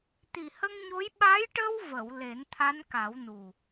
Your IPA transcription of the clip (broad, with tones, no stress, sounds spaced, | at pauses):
t̪ i˨˩ h ə˧ ŋ ɲ o˧˥ j ɓ a˧˥ j ʈ ə˧ w v ə˨˩˨ w l e˨˩˦ n t̪ʰ a˧˥ n k a˨˩˦ w n u˨˩